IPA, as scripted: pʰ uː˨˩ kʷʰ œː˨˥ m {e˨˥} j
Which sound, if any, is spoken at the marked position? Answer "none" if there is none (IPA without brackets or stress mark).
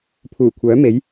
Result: e˨˥